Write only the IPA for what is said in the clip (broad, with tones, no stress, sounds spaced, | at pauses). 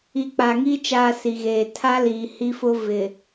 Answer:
i˨˦ k͡p a˨ ŋ iː˦ t͡ʃ aː˦ s i˨ ɣ eː˨ tʰ a˦ l iː˨ h i˦ f ʊ˦ v ɪ˨